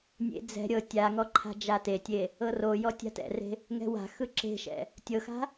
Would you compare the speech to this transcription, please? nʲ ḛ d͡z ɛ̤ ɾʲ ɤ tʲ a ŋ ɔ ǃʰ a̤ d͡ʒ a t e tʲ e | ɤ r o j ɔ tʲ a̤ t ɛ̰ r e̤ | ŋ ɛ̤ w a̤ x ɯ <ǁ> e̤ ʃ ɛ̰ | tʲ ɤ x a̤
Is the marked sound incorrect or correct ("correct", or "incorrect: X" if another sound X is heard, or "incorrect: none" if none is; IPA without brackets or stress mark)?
correct